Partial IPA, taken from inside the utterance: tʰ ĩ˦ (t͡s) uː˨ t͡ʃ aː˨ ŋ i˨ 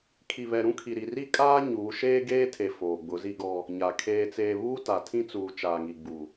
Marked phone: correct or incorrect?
correct